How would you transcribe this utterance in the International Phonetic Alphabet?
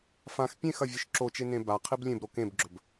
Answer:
fãx pʲẽxɐ vʲɨʃǁot͡ʃe nẽbaqʰib lʲẽbɾo kẽbɡ͡ǁɵb

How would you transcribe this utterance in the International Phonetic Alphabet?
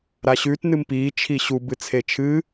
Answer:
ɾaɕʉt nɨmpiː t͡ʃʰiɕu bɨt͡sʰet͡ʃʰɨ

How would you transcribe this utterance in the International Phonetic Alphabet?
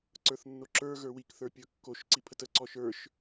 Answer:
ǀə˞θnːoǁə˞ ɣə˞wik θə˞pʲə˞kːoʃ ǀipʰətə ǀɔʃə˞ʃ

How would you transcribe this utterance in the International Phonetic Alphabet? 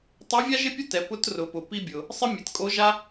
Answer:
tˤɛ˧˥vʲa˥ʒɪ˥pʲʊ˥ tɛ˩˧pʊ˧˥trʊ˩˧pʊ˩ pi˧bʲʊ˩ | sˤɪ˥mʲe˩˧tkʼo˧˥ʒa˥

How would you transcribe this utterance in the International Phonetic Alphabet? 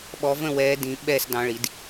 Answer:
ɓɔ˨˦və̃˥˨ wɛː˨˦dĩ˨˩˦ ɓɛ˥˨s dɑ̃˨˦ɭi˨˩˦d

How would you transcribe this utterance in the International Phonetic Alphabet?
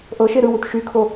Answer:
ʔɤʃe ɾɯwut ʃykʰo

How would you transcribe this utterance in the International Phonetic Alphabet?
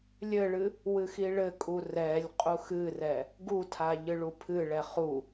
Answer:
lʲɘɭɨ | wɨxiɭɘkʼu rɛlʲ qʼuxɨrɛ | ɡutʰa ʎɨɭupʰɨɭɛ χu

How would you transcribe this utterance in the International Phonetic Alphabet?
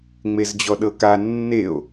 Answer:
ŋ͡mezd͡ʑɔɗɤka nːeo̯

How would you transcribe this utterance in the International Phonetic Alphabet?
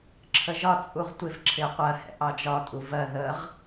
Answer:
ǁʰəʒɒ t͡sʼuʁtʷɪv ǁʰɪə̯qʷɜ hɛ̰ʔɑd͡ʒɒ tʼuvɜ ðəʁ

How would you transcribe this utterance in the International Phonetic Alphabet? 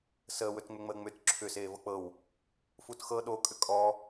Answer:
səːwɵtŋ͡mʏŋ͡məː ŋ͡mʏt ǁʰʏseːvɤ k͡pɤw | futxɤ ɗokʼʏ kʼɔ

